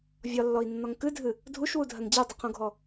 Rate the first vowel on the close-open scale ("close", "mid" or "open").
open